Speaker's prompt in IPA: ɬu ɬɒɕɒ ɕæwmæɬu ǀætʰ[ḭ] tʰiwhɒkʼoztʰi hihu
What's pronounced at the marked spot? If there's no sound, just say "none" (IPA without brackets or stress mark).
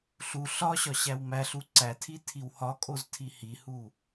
i